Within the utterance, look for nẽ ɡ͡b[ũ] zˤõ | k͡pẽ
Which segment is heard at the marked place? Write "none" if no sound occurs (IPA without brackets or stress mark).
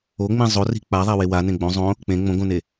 õ